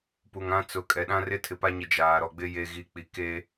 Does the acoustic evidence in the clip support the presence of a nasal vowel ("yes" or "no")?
yes